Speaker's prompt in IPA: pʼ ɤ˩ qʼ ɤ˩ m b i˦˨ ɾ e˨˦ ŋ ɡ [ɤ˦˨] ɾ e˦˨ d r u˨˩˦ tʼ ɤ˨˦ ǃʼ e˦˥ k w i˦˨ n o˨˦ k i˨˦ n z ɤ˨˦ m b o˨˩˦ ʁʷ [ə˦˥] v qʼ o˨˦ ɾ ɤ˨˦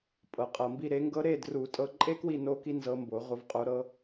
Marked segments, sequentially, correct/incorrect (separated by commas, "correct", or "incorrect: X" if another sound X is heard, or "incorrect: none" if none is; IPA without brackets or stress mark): incorrect: ɤ˦˥, incorrect: ə˨˦